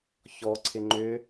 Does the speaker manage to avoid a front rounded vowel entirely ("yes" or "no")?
no